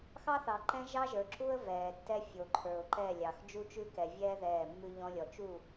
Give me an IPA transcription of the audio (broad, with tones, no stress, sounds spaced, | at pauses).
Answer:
x ɑ˦ θ ɑ˨ ǃ ɛ̃˦ ʒ ɑ˦ ʒ ə˞˨ ǁ u˦ ə̯ v ɛː˨ tː ɛ˦ fʲ o˨ ǃʰ ə˞˨ ʊ̯ ǃ ɛ˦˨ lʲ ɑ˨ x d͡ʒ u˦ t͡ʃ ʉ˦ k ɛ˨ vʲ ɛː˦ ð ɛː˦˨ mː ʉ˦ ʎ ɔ̃˦ lʲ ɔ˨ t͡ʃ u˦˨